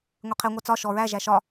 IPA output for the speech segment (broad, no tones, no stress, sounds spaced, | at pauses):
ŋʷ e qʰ e ŋʷ æ t͡s ɒ ʃ ɔ ɹ æ ʒ æ ʃ ɒ